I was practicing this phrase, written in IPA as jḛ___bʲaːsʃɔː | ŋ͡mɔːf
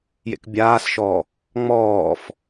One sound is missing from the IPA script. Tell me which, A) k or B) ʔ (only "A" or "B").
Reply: A